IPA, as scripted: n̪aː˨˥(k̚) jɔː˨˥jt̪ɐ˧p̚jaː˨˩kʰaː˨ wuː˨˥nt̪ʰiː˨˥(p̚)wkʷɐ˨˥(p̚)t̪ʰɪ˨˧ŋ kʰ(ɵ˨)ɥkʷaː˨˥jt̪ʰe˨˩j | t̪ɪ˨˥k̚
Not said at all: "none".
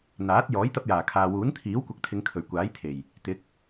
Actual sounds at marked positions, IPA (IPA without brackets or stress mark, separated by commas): t̚, none, k̚, ɵ˨˩